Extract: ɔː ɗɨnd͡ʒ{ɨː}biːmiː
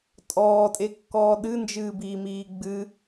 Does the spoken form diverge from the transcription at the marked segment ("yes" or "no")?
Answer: no